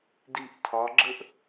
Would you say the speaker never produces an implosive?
yes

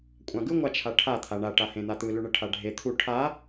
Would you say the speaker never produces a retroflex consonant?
no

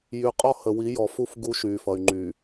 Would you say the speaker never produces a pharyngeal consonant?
yes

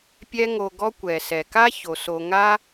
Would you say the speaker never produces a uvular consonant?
yes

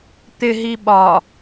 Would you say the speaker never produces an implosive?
no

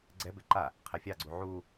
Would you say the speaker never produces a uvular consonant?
no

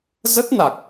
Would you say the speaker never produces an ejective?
yes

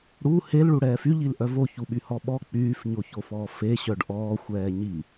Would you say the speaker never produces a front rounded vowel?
no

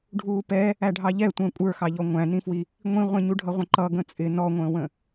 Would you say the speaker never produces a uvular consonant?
no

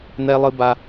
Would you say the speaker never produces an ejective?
yes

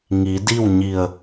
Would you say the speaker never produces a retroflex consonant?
yes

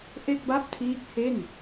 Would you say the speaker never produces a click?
yes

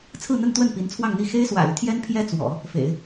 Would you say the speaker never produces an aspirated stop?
no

